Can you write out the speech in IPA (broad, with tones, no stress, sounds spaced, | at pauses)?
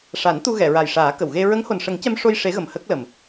ʂ a˨˩˦ n t̪ u˧ ɣ ɛ˨˩˨ ɹ a˨˩ j ʂ aː˨˩˦ k ə˨˩˨ w ɣ e˧ ɹ ə˧˥ ŋ h o˨˩ n ʂ ə˨˩˦ ŋ c ɛ˧ m ʂ o˧ j ʂ e˧˥ ɣ ə˨˩ m h ə˦˥ k̚ l ə˨˩ m